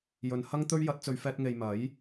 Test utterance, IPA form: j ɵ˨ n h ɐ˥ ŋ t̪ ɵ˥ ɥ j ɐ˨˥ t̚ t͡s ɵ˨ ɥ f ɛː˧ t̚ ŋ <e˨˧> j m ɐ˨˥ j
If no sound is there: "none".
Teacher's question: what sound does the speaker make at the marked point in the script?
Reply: e˨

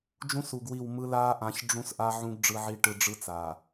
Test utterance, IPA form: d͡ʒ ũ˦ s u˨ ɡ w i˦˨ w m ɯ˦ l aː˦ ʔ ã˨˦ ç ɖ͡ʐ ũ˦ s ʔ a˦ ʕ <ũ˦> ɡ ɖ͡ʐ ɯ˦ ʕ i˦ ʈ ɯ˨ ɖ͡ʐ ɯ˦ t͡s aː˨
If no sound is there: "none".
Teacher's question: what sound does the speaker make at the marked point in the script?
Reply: ũ˦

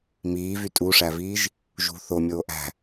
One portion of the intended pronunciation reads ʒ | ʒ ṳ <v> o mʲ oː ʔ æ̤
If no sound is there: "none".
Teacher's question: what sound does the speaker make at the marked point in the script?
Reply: θ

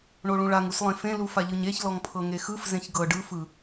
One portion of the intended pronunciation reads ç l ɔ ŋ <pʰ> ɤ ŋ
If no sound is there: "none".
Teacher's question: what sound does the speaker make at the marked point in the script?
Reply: pʰ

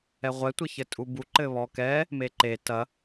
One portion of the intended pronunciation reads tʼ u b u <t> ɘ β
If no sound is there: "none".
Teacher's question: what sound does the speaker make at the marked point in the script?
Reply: ǃ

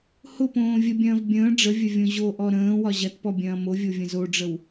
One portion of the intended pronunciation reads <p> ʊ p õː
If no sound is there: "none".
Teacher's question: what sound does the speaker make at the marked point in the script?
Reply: h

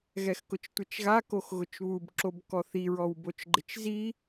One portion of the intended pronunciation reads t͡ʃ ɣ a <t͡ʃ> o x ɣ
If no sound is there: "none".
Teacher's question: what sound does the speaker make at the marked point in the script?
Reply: k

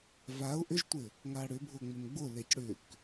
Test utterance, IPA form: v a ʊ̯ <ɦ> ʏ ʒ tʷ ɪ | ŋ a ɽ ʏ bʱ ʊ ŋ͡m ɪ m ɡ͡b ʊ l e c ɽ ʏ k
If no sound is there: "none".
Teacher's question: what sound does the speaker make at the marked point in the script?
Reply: ʔ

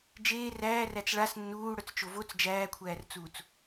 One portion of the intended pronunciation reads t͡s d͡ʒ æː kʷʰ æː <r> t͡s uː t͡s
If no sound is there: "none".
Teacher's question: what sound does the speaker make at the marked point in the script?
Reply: r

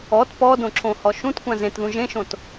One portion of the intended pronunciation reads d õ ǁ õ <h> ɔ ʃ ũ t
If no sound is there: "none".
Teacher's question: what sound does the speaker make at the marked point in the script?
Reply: h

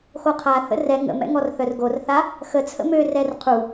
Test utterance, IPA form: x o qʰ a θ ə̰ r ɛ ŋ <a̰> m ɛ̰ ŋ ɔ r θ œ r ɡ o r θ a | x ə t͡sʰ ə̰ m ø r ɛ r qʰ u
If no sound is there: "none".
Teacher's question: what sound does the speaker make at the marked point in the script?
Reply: ə̰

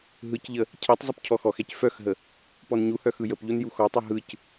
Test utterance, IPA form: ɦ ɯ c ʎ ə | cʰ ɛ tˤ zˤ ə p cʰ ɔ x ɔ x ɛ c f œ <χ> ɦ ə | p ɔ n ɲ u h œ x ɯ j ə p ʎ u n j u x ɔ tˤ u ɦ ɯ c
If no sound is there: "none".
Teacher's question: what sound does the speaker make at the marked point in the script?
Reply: x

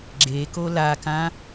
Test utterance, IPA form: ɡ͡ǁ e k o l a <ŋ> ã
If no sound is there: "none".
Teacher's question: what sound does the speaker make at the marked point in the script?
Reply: k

